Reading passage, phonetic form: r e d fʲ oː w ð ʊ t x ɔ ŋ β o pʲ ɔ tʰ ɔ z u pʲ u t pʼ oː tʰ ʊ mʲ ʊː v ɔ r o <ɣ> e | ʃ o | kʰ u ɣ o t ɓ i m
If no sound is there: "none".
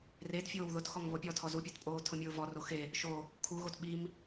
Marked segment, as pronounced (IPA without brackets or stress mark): x